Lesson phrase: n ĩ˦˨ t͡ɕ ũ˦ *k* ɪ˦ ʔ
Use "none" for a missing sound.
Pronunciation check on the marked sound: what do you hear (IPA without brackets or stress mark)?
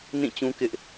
k